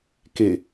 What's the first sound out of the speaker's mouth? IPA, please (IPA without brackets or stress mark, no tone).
k